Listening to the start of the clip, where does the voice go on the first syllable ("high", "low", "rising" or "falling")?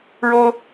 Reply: high